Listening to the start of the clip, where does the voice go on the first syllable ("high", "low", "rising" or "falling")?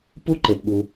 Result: high